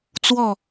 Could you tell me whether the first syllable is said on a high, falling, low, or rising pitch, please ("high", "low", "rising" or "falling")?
falling